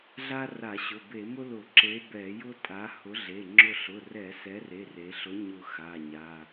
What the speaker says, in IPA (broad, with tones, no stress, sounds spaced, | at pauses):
ɮ a˥ r a˧˩˧ ɕ ʊ˩˧˩ b e˧˩˧ m ʊ˥ l ʊ˧˩˧ ǁ e˨˥ b ɛ˧˩˧ j ʊ˥ tʼ a˨˥ h ʊ˨˥ ɮ e˩˧˩ ŋ͡ǁ ʊ˦˨ ɬ ʊ˩˧˩ r ɛ˧˩˧ s ɛ˨˥ r e˩˧˩ r e˩˧ ɬ ʊ˨˥ ɲ ʊ˦˨ x a˩˧˩ ɲ a˩˧˩